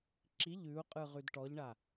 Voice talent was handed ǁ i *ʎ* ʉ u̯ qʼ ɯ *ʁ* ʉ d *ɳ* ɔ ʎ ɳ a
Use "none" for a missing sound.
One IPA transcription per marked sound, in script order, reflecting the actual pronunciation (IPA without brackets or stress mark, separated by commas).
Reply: ʎ, ʁ, ʈ